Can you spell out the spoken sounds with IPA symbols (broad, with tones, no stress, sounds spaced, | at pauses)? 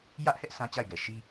j ä˦ ʔ h ɛ˦ ʔ sʰ ã˦ t͡ɕ a˦˨ ɪ̯ ɡ ɛ˨ ʃ i˦